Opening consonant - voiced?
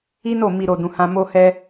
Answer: yes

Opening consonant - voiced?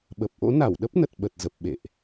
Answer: yes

